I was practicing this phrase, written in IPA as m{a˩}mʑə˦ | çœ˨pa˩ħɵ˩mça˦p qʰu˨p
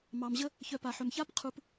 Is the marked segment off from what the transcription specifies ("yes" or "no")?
yes